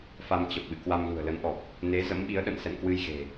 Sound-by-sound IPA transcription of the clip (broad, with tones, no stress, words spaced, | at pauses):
fa˧mt͡ɕə˨˩p̚ɓɨ̰˧˨ kwa˧mlṳ˨˩ə̯lə˨˦nʔɔ˨˩k̚ | ne˨˦ zə̰˧˥mɓi˨˦ə̯ɗə̰˧˨n sɛ̰˧˨nkwɨ˧jɣe̤˨˩